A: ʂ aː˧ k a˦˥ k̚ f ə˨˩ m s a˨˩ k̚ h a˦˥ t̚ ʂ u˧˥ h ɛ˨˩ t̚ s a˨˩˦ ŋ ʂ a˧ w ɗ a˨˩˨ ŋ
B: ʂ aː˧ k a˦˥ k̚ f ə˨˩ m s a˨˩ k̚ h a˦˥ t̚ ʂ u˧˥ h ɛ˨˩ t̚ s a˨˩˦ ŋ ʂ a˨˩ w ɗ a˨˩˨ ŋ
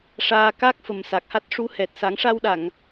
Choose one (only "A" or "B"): A